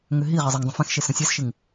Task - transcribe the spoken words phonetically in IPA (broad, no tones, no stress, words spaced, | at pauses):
ŋʏɦiʁɪ zˤɪŋdˤə̃ fɛ̃xʃe sə̃ sʲɛsʃɪŋ